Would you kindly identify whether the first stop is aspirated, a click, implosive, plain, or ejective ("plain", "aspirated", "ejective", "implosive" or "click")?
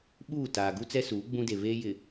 implosive